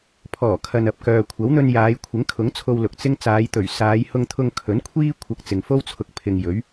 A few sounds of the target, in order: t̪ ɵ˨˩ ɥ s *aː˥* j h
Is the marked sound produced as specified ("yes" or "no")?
no